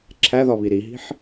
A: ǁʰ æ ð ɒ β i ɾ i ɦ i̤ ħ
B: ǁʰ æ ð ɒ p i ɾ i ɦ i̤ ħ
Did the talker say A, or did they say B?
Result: A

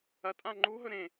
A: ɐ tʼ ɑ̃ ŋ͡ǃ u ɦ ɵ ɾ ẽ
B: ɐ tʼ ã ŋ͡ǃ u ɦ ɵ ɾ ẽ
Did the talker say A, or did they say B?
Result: B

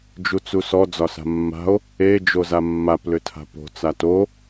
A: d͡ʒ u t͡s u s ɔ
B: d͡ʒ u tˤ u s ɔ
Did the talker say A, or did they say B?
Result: A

